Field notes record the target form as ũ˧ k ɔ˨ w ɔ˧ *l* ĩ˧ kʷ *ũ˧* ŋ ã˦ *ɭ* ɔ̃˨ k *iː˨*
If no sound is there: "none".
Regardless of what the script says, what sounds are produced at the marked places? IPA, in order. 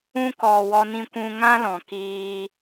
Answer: n, ũ˧, l, iː˧

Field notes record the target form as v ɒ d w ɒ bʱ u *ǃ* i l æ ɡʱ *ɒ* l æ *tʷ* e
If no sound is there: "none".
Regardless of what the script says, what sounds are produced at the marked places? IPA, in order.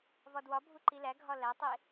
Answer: ǃ, ɒ, tˤ

